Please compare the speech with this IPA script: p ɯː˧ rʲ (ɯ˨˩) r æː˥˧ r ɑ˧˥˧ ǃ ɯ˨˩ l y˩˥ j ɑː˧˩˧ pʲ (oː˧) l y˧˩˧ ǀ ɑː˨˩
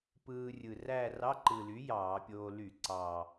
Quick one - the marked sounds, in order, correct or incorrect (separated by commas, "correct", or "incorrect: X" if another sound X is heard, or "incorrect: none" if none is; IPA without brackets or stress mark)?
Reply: correct, correct